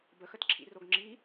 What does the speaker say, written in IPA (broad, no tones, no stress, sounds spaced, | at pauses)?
b ə x ə t ǁʰ ḭ r o ɡ ŋ͡ǁ i